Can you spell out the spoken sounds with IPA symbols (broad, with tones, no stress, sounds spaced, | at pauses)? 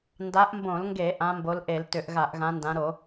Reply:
n d a˨˦ ʔ m b õ˧˩˧ l ŋ ɡ e˧˩˧ ʔ ã˨˦ m b o˨˦ l ʔ e˧˩˧ l t ʏ˧˩˧ ʔ ɣ a˧˩˧ ʔ ɣ ã˨˦ n d ã˨˦ ɾ o˧˩˧